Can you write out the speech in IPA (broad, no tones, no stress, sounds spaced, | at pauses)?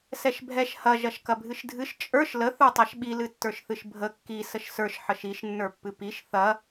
s ɛ ʃ bʱ ɛ ʃ h ɐ ʒ ɐ ʃ k ɐ bʱ ɨ ʃ dʱ ɨ ʃ t͡ʃʼ ə˞ ʃ l ə θ ə˞ tˤ a ʃ ɓ i l ɨ tː ə˞ ʃ θ ɨ ʃ bʱ ə kː i s ə ʃ s ə˞ ʃ ħ ə ʃ i ʃ nː ə˞ pː ɨ p i ʃ θ ɐ